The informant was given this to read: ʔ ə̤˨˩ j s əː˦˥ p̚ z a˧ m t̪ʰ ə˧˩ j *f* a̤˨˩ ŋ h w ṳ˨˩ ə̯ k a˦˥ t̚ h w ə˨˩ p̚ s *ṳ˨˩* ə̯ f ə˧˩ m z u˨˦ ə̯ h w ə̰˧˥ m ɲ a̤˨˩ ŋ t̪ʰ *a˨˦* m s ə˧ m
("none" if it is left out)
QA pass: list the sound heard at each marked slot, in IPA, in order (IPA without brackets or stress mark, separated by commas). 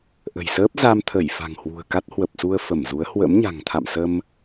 f, u˧, a̰˧˨